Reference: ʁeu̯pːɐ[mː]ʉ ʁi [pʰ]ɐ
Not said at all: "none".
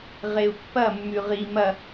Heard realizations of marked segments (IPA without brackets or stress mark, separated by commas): mː, m